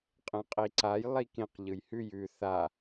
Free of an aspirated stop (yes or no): yes